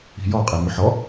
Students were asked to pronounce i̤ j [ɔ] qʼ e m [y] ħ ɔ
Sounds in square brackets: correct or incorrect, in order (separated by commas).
correct, correct